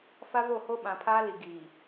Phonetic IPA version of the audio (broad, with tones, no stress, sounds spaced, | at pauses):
f a˦ v o˦˨ h o˦ ɓ ã˨ pʰ aː˦ l i˨ ɡ iː˨